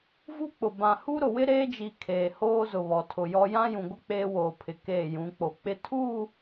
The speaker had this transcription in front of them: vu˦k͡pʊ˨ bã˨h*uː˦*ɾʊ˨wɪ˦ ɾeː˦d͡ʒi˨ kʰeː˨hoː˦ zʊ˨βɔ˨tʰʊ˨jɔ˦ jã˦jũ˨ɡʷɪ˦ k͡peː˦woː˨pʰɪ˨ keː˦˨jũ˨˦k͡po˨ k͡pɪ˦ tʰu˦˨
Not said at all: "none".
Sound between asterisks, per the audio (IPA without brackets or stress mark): u˦